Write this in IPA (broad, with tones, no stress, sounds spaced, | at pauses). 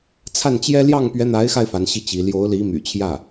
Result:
t͡sʰ a˥˩ n t͡ɕ j ɛ˥ l j ɑ˥˩ ŋ p ɥ ɛ˧˥ n̪ a˧˥ ɪ̯ x a˧ ɪ̯ f a˧˥ n ɕ i˥˩ t͡ɕ i˧˥ l j o˧˥ ʊ̯ l i˧˥ m y̰˨˩ t͡ɕʰ j ä˥˩